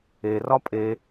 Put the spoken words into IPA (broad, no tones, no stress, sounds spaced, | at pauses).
e r ɒ pʼ e